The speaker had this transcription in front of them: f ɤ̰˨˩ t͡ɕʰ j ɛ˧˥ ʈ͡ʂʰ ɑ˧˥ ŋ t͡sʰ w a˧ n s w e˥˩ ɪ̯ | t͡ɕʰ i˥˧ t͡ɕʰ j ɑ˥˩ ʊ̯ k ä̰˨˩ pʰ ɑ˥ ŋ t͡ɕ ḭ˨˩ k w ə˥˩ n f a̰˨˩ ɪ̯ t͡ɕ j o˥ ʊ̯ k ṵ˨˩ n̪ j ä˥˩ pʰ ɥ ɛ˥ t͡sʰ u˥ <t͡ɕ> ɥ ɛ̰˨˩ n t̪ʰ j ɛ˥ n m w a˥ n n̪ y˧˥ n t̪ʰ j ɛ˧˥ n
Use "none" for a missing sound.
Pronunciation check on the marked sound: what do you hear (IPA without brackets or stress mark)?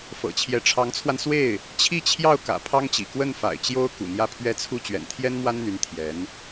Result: t͡ɕ